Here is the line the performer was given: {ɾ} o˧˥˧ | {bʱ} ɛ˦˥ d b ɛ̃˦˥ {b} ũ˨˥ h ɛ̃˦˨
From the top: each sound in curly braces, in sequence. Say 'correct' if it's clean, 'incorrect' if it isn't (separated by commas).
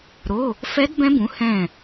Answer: correct, incorrect, correct